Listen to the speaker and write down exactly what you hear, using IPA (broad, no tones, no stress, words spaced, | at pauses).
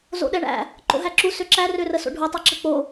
zo̰ɗɛɳæ̰ | ǃo̰ɦæǁu søǁæ rørəso̰ɖʱu tˤɛǁək͡po